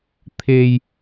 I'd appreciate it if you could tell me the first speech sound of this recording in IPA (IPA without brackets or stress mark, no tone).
t̪ʰ